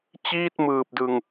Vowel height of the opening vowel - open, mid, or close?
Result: close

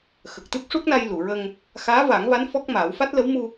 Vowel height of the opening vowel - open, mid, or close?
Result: mid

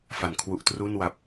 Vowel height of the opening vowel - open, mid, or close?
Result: open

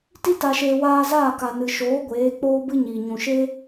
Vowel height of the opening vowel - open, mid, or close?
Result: close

